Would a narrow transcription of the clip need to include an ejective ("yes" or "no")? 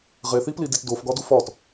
no